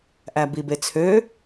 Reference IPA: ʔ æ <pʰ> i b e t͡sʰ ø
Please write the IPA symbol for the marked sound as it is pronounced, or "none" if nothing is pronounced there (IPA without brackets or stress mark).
b